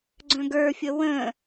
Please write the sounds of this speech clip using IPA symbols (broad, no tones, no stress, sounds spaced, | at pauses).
ɡ͡ǀ œ̃ ɡ ə˞ fʲ ə w ə̃